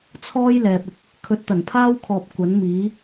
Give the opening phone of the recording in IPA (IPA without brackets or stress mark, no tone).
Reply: t͡sʰ